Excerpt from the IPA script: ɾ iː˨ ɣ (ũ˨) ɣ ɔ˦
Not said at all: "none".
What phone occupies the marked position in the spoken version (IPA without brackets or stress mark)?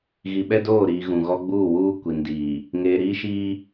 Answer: ũ˨